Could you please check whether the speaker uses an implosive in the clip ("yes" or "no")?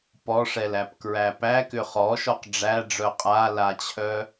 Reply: no